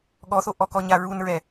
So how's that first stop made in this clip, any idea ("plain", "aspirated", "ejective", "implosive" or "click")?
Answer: implosive